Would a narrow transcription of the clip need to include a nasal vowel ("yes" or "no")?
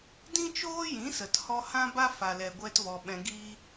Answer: yes